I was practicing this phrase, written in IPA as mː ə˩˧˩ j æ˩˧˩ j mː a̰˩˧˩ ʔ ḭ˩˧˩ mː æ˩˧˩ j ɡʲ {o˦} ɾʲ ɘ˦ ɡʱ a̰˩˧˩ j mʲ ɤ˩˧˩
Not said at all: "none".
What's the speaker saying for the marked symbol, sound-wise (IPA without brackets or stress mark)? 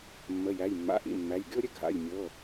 o˦